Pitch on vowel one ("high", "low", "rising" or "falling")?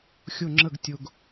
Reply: falling